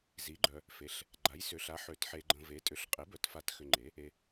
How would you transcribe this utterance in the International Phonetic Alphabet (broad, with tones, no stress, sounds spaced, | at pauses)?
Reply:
z i˩˥ ɡ͡ǃ œ˨ | f e˩˥ ɬ | ɡ͡ǃ a˩˥ j s ʏ˩˥ ɬ a˩˥ ħ ø˩˥ t ħ e˨ ɡ͡ǃ ə̃˨ v e˩˥ tʼ ʏ˩˥ ɬ qʼ e˩˥ b œ˩˥ t f a˩˥ t x ʏ˨ ŋ͡ǃ e˩˥ | e˨